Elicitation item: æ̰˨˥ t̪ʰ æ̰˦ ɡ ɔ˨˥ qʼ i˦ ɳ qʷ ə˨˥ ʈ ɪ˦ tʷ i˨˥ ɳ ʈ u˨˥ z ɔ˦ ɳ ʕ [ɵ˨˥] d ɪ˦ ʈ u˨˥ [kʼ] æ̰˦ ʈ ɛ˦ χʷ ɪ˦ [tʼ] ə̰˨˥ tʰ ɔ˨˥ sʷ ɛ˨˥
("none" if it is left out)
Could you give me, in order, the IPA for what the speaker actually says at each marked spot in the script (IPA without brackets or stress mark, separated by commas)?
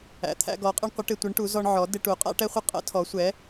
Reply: ɔ˨˥, qʼ, qʼ